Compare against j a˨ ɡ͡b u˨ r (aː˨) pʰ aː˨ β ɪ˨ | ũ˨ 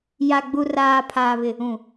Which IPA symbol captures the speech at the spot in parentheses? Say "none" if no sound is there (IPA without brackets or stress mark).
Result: aː˨